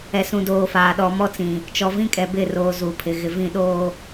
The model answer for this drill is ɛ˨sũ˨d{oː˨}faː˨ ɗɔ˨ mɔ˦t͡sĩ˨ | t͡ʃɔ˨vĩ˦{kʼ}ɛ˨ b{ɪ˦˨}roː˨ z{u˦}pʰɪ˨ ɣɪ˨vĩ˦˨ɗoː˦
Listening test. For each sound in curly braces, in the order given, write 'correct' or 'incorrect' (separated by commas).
correct, correct, correct, incorrect